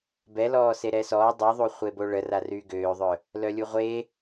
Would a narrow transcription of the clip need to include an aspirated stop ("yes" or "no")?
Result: no